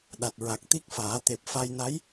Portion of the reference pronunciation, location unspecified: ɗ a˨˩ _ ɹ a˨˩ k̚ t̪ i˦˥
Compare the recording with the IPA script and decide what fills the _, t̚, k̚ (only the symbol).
t̚